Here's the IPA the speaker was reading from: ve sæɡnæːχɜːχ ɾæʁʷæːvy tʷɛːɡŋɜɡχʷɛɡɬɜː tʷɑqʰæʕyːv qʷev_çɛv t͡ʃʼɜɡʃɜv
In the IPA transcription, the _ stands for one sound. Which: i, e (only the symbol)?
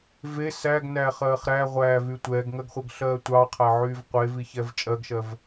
i